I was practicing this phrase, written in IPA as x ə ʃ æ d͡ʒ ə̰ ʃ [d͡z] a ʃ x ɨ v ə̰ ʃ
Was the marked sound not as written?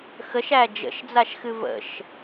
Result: no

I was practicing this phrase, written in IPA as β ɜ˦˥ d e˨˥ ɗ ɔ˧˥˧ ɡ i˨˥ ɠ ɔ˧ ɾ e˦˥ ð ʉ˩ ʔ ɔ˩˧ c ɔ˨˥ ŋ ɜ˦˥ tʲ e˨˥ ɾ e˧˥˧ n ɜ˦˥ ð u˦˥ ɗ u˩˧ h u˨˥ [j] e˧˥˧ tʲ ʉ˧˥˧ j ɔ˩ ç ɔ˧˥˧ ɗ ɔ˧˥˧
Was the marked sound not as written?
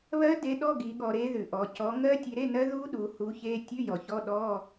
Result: yes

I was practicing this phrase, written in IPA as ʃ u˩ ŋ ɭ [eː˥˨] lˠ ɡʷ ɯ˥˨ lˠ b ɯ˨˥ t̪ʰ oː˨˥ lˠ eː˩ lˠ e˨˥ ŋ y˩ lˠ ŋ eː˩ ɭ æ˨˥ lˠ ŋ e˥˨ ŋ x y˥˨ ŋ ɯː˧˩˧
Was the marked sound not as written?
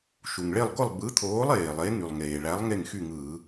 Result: yes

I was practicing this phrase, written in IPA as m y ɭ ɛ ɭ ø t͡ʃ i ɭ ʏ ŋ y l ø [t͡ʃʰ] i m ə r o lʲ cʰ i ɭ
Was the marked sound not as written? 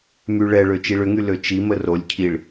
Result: yes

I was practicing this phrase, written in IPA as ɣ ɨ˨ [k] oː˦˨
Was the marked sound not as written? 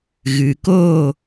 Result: no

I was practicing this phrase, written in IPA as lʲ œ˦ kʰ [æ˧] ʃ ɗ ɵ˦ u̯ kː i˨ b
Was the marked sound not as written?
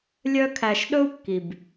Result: no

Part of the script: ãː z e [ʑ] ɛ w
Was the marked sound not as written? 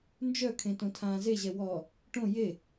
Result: no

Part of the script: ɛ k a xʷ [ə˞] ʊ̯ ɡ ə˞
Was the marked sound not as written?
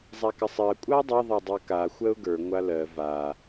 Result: yes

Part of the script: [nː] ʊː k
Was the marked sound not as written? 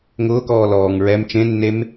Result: yes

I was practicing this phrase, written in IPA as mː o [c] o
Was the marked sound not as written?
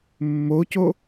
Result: no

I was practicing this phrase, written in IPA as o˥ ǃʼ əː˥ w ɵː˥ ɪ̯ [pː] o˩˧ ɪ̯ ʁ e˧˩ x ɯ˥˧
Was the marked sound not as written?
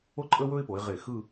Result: yes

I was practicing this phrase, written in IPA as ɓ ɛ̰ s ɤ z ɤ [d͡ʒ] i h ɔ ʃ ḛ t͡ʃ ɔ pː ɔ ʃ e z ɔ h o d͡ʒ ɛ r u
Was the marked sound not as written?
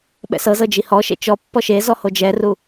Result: no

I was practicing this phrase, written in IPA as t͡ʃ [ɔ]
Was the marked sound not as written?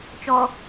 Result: no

